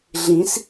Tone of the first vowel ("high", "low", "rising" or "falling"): rising